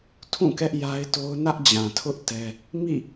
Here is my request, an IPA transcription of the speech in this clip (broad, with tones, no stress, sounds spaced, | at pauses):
tʰ ũ˦˨ k ɛ˦ ʔ j a˦ ɪ̯ t o˦ ʊ̯ n ä˦ ʔ d͡ʑ ã˨ tʰ ʊ˦ ʔ t ɛ˦ | m ḭ˦˨